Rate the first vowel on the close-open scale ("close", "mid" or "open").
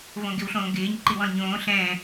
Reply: mid